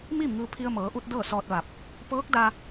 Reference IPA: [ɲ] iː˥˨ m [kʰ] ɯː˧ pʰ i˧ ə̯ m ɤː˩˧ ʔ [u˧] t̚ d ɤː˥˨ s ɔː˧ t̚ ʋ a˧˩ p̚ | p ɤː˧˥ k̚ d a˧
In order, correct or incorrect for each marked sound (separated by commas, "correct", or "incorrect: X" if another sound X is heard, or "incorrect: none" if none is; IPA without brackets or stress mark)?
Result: incorrect: m, incorrect: ŋ, correct